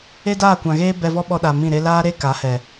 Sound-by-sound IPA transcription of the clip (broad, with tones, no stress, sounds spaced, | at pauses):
e˦ d aː˦˨ kʷ ã˨ ɣ eː˦ b ɛ˧ v ɔ˦ ɓ ɔ˧ ɗ a˨ m ĩ˦˨ ɾ e˦ l aː˦ ɾ e˦ k a˨˦ h ɛ˨